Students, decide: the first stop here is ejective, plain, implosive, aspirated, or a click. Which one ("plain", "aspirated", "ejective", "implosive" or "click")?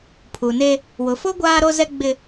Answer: aspirated